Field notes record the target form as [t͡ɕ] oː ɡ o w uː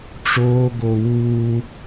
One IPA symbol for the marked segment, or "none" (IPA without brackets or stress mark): ʈ͡ʂ